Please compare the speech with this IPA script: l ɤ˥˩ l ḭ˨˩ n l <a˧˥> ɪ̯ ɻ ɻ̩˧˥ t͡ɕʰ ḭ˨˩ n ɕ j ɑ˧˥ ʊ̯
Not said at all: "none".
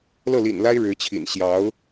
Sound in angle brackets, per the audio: a˥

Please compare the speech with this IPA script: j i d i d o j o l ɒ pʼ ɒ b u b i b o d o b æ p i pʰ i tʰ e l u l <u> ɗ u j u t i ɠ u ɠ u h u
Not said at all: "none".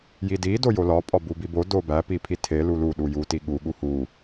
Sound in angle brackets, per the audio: u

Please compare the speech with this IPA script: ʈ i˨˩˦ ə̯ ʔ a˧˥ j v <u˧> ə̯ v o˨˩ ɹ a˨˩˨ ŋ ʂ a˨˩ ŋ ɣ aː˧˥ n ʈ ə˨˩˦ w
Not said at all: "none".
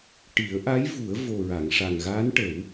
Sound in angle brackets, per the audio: u˨˩˦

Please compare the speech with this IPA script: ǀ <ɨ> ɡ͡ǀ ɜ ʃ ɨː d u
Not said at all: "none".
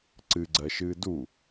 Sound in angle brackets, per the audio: ɨ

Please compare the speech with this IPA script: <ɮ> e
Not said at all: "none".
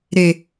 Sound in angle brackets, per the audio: ɾ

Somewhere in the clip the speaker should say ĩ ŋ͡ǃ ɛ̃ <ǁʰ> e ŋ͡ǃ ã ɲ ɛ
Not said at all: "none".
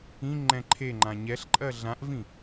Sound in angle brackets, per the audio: ǃʰ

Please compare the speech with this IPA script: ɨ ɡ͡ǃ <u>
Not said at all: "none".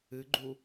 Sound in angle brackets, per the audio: u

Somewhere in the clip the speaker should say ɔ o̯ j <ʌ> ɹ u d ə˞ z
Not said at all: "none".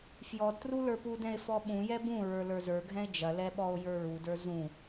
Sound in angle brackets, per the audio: ə˞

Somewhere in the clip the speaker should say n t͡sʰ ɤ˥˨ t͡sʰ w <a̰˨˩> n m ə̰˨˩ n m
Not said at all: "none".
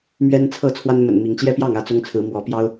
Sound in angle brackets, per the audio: a˦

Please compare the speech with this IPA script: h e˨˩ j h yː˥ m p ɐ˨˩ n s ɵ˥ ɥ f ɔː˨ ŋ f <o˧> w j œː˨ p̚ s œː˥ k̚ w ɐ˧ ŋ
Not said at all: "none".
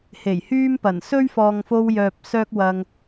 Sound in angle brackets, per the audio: o˧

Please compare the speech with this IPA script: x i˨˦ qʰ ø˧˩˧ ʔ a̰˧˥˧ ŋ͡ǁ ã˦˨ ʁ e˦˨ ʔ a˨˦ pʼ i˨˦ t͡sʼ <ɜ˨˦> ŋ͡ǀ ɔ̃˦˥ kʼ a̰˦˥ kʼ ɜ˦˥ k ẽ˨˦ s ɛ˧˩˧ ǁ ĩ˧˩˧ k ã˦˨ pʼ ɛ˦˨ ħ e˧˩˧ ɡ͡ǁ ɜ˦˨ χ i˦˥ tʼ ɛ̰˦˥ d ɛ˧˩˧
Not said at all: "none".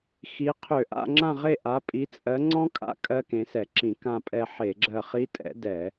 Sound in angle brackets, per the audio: ɜ˨˦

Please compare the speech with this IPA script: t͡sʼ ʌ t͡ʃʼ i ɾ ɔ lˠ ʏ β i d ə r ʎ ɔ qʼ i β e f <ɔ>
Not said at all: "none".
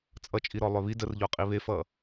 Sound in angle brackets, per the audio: ʌ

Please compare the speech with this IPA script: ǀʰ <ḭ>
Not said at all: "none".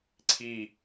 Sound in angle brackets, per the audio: i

